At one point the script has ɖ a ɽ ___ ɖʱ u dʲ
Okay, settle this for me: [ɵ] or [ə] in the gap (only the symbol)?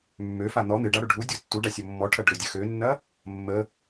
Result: ɵ